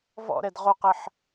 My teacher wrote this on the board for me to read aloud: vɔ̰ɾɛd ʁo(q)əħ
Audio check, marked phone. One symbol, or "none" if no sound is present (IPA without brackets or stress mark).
q